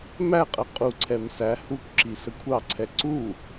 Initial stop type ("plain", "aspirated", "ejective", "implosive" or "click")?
ejective